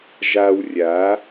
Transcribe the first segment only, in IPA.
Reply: ʒ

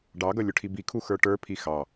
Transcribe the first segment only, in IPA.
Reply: ɖ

